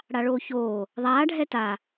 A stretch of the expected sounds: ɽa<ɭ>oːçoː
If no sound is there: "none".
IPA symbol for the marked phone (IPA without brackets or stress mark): ɭ